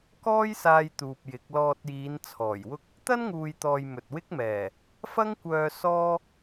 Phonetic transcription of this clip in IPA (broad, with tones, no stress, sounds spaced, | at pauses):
k ɔː˥ j s aː˧ j t̪ uː˨ p̚ j ɪ˨˥ k̚ l ɔː˧ t̚ j iː˨˧ n t͡sʰ ɔː˨˩ j w ʊ˥ k̚ | t̪ ɐ˥ n ŋ uː˨ j t̪ ɔː˨ j m ɵ˨ t̚ w ɪ˥ k̚ m ɛː˨˩ | f ɐ˥ ŋ kʷ œː˧ s ɔː˥